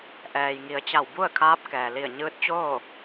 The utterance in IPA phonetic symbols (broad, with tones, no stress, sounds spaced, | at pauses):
ʔ ɛː˩ j ŋ i˩˧ ə̯ t͡ɕ a˧˩ w b u˥˨ ə̯ kʰ aː˧˥ p̚ k ɛː˩ l i˧˩ ə̯ ɲ ɯː˧˥ t̚ t͡ɕ oː˥˨